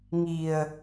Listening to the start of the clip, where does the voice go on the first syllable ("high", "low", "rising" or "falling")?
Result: low